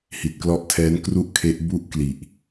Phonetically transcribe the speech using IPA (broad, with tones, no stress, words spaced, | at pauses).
hi˨˩t̚klɔ˦˥ʔtʰɛː˦˥n kru˥˩ʔkʰe˦˥ʔ bu˥˩ʔkli˨˩ʔ